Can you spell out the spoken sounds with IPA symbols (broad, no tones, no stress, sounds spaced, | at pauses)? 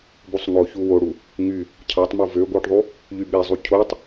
b u sˤ ŋ o ç u w o ɽ u | ŋ y | cʰ ɑ tˤ m u v ø ɡʷ ɯ ʈ ðˤ u | ʎ y ɓ e zˤ u cʰ o tˤ